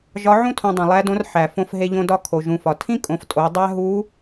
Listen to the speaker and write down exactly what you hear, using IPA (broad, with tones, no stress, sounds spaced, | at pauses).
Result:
ʒ ɒ˧˥ ʕ ũ˥ tʰ õ˧ dˤ ĩ˩ lˠ æ˧˥ d õ˧˥ r ħ æ˩ f õ˧ f ɦ e˧ ʎ õ˧ d ɒ˧˥ kʰ o˩ ʒ ũ˩ f ɒ˩ tʰ ĩ˥ kʼ õ˩˧ f tʼ o˩˧ dˤ æ˥ ɦ u˧˥